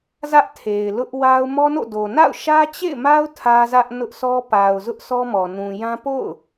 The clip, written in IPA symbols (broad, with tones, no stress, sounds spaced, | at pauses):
z ä˦ ʔ tʰ e˨ ɪ̯ l ʊ˦ ʔ w a˦ ʊ̯ m ɔ˦ n o̰˦˨ d o˨ n a̰˦˨ ʊ̯ ʃ ä˦ t͡ɕ ḛ˦˨ ɪ̯ m a˦ ʊ̯ tʰ ä˦ z ä˦ ʔ n ʊ˦ ʔ sʰ ɔ˦ p a˨ ʊ̯ z ʊ˦ ʔ sʰ ɔ˦ m ɔ˨ n ũ˨ j ã˦ p o̰˦˨ ʊ̯